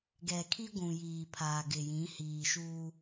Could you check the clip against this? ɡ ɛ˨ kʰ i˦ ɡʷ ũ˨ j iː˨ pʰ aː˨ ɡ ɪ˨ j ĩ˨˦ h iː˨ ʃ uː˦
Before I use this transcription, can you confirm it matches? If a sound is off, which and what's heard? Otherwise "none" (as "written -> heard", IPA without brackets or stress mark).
none